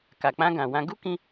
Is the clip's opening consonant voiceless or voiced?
voiceless